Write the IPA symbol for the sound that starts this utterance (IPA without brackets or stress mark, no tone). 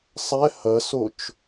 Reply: sˤ